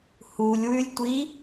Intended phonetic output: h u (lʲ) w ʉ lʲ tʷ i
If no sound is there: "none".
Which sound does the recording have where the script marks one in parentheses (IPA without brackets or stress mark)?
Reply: lʲ